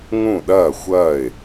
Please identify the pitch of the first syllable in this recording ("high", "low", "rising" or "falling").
falling